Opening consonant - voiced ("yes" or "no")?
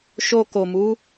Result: no